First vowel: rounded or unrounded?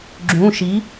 rounded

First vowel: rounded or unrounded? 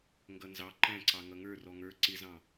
unrounded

